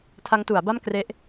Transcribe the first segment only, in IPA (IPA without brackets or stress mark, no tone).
tʰ